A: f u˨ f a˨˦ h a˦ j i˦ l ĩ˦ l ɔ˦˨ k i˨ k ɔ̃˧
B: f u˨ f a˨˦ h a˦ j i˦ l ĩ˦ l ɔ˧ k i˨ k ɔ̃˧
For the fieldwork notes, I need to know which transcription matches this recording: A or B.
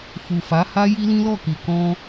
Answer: A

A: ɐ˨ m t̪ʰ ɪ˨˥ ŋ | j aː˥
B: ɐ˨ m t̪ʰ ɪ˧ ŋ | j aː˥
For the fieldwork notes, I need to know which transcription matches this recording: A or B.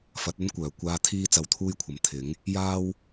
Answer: A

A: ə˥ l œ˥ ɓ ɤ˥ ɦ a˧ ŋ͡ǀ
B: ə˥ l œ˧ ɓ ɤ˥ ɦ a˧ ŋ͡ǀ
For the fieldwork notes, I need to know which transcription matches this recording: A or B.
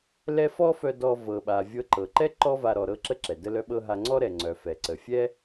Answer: A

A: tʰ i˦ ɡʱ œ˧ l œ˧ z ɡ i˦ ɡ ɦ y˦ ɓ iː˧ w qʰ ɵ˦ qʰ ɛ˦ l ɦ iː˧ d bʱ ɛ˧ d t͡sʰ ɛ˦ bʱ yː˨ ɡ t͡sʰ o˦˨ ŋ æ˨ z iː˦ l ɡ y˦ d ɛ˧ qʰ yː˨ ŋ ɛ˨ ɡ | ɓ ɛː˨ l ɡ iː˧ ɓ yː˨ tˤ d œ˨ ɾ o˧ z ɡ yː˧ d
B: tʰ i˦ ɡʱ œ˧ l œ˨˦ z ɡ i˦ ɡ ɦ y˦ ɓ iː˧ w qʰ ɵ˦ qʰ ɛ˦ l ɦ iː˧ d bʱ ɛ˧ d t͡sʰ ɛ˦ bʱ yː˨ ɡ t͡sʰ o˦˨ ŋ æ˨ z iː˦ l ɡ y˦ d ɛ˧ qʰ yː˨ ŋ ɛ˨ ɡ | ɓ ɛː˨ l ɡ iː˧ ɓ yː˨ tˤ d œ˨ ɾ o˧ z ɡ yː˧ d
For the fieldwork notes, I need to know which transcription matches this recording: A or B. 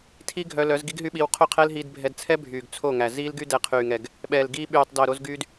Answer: B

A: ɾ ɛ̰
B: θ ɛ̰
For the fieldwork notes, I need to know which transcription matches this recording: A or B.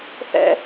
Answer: B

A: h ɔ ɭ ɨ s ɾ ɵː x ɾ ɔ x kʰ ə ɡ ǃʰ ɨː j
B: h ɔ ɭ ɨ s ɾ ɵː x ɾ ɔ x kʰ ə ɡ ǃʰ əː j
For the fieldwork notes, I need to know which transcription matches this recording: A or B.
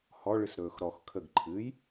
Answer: A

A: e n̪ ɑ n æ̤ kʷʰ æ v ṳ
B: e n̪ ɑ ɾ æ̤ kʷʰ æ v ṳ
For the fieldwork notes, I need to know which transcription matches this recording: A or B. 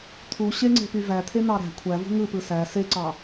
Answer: B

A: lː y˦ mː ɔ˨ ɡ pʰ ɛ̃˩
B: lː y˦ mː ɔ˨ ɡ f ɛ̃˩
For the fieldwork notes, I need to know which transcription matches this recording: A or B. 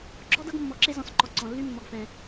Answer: B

